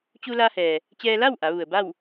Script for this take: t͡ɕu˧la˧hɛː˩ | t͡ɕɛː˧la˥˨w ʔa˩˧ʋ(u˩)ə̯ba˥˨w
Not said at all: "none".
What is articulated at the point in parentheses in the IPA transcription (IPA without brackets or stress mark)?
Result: u˩